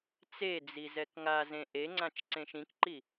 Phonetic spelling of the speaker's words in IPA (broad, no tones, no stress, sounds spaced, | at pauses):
t͡s e d͡z i z ɛ k ŋ a z ẽ ʔ e ŋ͡ǀ ã t͡ʃ ǀ ẽ ʃ ĩ k ǃ i